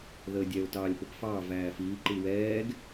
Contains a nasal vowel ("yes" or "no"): no